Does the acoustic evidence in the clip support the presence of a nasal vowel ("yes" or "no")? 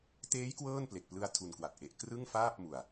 no